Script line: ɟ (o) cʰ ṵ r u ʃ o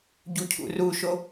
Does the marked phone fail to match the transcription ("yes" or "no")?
yes